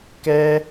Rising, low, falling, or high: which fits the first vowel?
high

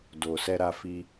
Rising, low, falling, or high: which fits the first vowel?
low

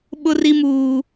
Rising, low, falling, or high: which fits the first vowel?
high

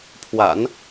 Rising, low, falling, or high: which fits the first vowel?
low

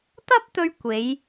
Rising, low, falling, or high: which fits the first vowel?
high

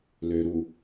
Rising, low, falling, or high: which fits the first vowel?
low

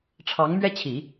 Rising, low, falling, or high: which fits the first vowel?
rising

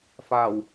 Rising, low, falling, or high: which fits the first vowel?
low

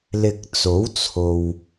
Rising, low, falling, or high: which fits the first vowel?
low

